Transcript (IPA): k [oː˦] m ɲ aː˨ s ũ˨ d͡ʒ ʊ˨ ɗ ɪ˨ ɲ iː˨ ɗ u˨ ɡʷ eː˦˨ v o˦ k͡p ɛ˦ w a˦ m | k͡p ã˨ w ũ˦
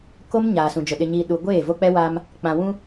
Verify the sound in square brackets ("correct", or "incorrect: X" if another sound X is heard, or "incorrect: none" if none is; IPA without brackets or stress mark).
incorrect: o˦